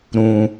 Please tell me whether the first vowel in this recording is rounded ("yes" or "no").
yes